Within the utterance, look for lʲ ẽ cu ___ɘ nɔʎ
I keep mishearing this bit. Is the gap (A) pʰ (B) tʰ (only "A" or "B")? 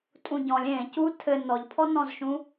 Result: B